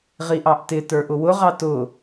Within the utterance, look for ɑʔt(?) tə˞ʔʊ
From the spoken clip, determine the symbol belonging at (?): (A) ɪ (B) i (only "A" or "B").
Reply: A